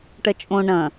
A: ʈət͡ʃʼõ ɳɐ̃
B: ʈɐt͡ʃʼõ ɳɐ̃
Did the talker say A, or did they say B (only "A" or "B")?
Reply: B